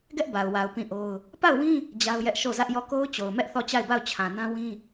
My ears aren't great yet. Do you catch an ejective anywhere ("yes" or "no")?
no